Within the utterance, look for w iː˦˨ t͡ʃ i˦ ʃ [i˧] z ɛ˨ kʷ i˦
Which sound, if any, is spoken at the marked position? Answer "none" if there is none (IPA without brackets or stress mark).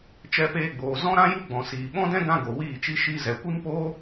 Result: i˧